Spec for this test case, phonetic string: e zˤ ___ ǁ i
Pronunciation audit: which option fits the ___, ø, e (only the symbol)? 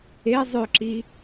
ø